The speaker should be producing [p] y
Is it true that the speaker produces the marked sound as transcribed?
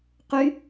no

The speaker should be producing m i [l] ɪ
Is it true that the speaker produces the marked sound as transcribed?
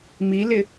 yes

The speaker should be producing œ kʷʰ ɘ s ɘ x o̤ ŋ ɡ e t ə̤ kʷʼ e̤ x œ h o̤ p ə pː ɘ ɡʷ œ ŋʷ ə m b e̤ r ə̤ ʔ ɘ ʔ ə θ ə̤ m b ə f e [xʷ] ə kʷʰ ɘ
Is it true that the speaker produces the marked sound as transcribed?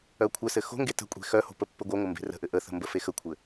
no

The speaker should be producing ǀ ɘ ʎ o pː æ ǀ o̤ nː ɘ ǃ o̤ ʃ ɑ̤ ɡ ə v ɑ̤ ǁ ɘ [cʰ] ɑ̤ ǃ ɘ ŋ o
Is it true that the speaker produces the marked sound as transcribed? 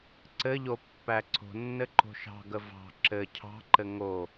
yes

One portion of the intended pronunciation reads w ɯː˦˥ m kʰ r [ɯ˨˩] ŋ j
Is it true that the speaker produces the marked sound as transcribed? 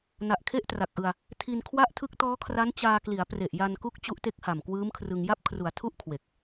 no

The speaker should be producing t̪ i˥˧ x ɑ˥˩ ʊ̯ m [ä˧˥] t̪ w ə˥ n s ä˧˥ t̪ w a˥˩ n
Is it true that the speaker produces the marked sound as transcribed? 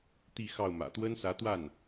no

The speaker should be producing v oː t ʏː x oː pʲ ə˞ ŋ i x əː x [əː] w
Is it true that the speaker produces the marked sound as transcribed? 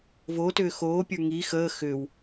no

